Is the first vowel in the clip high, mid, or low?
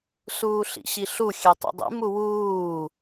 high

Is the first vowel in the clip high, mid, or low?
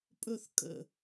mid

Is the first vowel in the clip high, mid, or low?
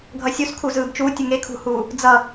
mid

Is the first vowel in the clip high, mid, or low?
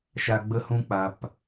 low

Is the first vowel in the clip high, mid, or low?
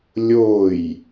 mid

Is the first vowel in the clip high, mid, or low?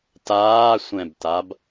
low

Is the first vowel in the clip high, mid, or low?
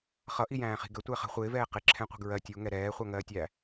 mid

